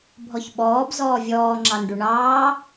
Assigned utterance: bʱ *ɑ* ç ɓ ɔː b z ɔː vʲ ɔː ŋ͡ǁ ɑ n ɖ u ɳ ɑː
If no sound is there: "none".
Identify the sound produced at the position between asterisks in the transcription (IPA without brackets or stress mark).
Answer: ɔ